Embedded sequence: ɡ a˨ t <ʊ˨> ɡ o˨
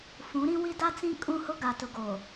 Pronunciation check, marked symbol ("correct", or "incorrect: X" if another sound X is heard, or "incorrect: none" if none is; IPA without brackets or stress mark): correct